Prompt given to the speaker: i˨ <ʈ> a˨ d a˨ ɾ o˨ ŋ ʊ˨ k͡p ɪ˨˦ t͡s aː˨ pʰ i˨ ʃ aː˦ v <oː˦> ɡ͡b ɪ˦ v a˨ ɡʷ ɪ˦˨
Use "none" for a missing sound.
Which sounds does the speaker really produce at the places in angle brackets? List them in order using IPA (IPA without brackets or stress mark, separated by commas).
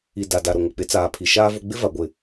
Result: d, o˦